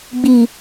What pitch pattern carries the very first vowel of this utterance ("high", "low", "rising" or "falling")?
low